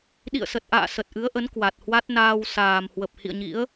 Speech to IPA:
ɗ ḭ˧˨ ə̯ s ə˨˩ t̚ ʔ a̰ː˧˨ s ə˨˩ t̚ ʔ ɨ˨˦ ə̯ ʔ ə˨˦ n k w a˨˩ t̚ h w a˦˥ t̚ n aː˧ w s aː˨˩ m h w ə˨˩ p̚ h ḭ˧˨ ə̯ ɲ ḭ˧˥ ə̯

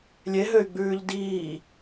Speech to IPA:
lʲ e ɦ ø y̯ ɡ͡b ʉː ʎ d iː

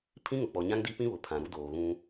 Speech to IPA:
pʰ ĩ˦ ŋ ʊ˨ k͡p ɔ˨ ɲ ã˦ ŋ d i˦ p ĩ˦ β ʊ˨ pʰ ã˨ ɾ u˦ d oː˨ ɣ ũ˦

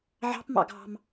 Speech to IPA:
ʕ ɑ̤ p m ɑ̰ ɡʱ ɑ̤ m

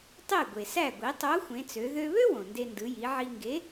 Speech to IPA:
tˤ e˥˩ ɡʷ e˩ s æ˥˩ ɡʷ i˩˧ tˤ o˨˥ xʷ ẽ˩˧ t͡s ø˩˧ ð ø˧ β ø˥ w õ˩ n d e˧ n d ɯ˩˧ j i˩˧ ʕ i˧ ŋ ɡ e˨˥

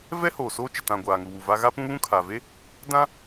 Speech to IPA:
v ɛ˦ h oː˨ s oː˦ t͡ʃ ɪ˨ t ã˨ ɡʷ aː˨ ŋ u˨ w u˨ v a˦ ɣ a˦ p ũ˦ β ũ˦ kʰ a˨ v e˦ | d ã˦

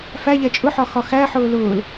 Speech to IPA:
f æ ʎ ɛ t͡ʃʼ ʊ ħ ɒ x ɒ x æ ħ ʊː l ʊː l

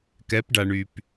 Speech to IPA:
k ɛ˧˥ p ɖ a˧ ɳ y˧ p

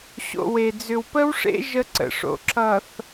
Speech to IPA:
ɕ o̰˨ w e˨ d͡z ʏ˨ w p ə˦ w ʂ ḛ˦ ʒ ə˦ ǀ ə̰˨ ʂ o̰˨ ǁ ʌ˨ θ

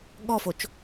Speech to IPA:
ɠ ɔ f o t͡ʃ

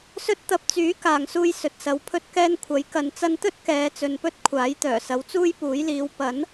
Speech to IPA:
s ɵ˥ t̚ t̪ ɐ˧ p̚ t͡s yː˨˥ k aː˨ ŋ s uː˧ j s ɵ˨ t̚ s ɐ˨˧ w pʰ ɵ˥ t̚ k ɛː˥ n kʷʰ ɐ˨˥ j k ɐ˨ n t͡s ɐ˧ n t̪ ɵ˥ t̚ k ɛː˨˧ t͡s ɵ˨ n p ɵ˥ t̚ kʷʰ aː˨˥ j t̪ œː˨˩ s ɐ˨˧ w t͡s uː˥ j p uː˨˥ j l iː˨˧ w p ɐ˨˥ n

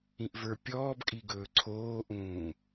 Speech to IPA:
ĩ ʔ v ə˞ pʲ ɔː b kʼ i ɡ ɵː ǀʰ oː ʔ ũː

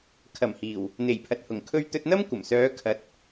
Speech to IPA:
kʰ ɐ˨˩ m h iː˨˩ w | n̪ e˨˩ j pʰ ɐ˨ t̚ h ʊ˨˩ ŋ kʰ ɵ˧ ɥ t̪ ɵ˧ t̚ n̪ ɐ˥ m kʷ ɐ˨˩ m s œː˨˧ kʰ ɐ˨˥ t̚

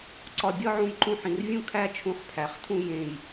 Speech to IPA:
ǀ ɒ˧˩ bʲ ɒ˥˧ ʕ ũ˧˩ j ǃ ũ˧ ħ ĩ˩˧ r vʲ ũ˥˧ kʰ æ˥ t͡ʃʰ ũ˧ χ pʰ æ˩˧ χ tʰ ũ˥˧ j ẽ˧˩ j

